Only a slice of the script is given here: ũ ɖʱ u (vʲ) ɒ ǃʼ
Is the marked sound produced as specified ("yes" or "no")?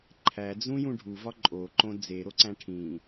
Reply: no